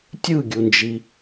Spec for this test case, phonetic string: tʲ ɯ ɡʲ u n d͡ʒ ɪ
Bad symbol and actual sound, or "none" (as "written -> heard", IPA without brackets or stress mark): ɪ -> i